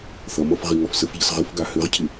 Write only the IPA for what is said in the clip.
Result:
θʌmʌf ʁiŋɔfsəfʎʌs ʁɘfɡa hɘʁcʰɪ

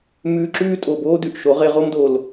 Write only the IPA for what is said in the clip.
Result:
mʉː˧ǁʉː˦ tʼo˨boː˦dʉ˨ʔʃo˨˦ ʁe˧ʁo˦mdoː˨l

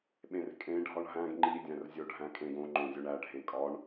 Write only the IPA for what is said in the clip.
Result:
ɓẽrkʼẽ ɖʱɒɳɦæ̃ɡ ŋ͡ǃi dʲæ̃rzʲoɖʱæ̃kʼẽɡ õ ŋ͡ǃõzʲoɳæ ɖʱẽkʼɒɳ

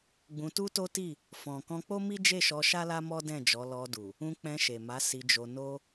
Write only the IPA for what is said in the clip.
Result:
ɡ͡bũ˧tu˦to˦ti˦˨ | fɔ̃˨ kɔ̃˧k͡po˦mi˦ d͡ʒe˦˨ʃɔ˧ʃa˦la˦ mɔ˦dɛ̃˦˨d͡ʒɔ˨˦ lɔ˧du˨ | ũ˧k͡pɛ̃˧ʃe˨ma˨˦ si˧d͡ʒo˧ no˦

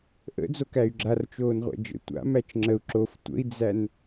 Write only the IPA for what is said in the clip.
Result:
ʔə̰d͡zokæy̯ ɡ͡ǁart͡ʃoːnʁʷæ̰ d͡ʒə̰ tʷa̰mæt͡ʃ ŋ͡ǁəu̯ ǁof tʷə̰i̯d͡zæn

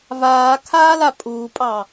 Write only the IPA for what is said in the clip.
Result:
vaːkʰaːla pʼuːpʼɑ

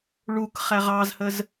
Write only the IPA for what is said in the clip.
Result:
ɭuk χæʁɑzhəz

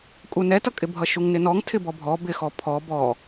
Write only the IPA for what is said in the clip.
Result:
kʼunɛtʌkʼɪ bʱʌʃuŋnɪnɔŋ tʰɪbɔbʱɔ bɪxɔ pʰɔb ɔ

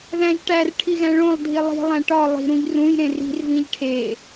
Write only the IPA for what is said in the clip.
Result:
ðæ̃ʒʈær ʈʰiɣæ̃ɭõlˠ dʱilˠi̤ lˠæ̃ʈɒ lˠi̤ ɾũʎrũj ɾẽri̤r vĩʎʈʰe

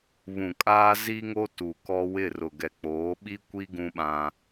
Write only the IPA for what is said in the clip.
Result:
βũ˨kʼaː˦zi˦ŋo˦ tu˨kɔ˦ wɪ˦˨rʊ˨ɡɛ˨ k͡poː˨˦ɓi˦kʷi˦ ɡũ˦ɓã˦

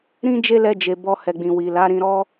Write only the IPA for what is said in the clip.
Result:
ɾĩ˦d͡ʒe˦lɛ˧d͡ʒe˨ bɔ˧hɛ˨ɡ͡bĩ˨wi˨ la˨˦ɾĩ˧ ɾɔ˦

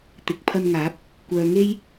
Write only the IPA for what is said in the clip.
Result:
t̪ɪ˨k̚ pʰɐ˧nŋaː˨˥p̚ | kʷœː˨ŋe˥j

